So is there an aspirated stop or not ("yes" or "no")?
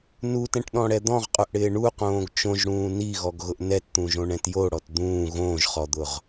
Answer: no